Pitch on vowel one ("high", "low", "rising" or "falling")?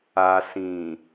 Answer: low